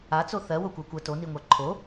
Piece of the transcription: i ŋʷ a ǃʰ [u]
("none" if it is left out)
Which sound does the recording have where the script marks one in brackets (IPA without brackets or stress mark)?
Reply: o